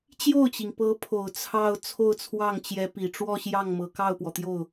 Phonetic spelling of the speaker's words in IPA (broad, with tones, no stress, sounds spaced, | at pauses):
t͡ɕ j o˥˩ ʊ̯ t͡ɕ i˩ ŋ p ɤ˧˥ pʰ o˨˩ ʊ̯ t͡sʰ ɑ˥˧ ʊ̯ t͡sʰ o˥˧ ʊ̯ t͡sʰ w ɑ˥˩ ŋ t͡ɕ j ɛ˧˥ p i˨˩ ʈ͡ʂ w ɔ˥˧ ɕ j ɑ˥˩ ŋ m ɤ˨˩ k ɑ˥˩ ʊ̯ p w ɔ˩ t̪ j o˥˩ ʊ̯